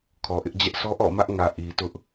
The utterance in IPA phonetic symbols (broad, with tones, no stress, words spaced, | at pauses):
kʰɔ˨ʔɪ˦ʔd͡ʑɛ˦ʔ sɔ˦ʔɔ̰˦˨mä˦ʔŋä˨ ʔi˨tʊ˦ʔ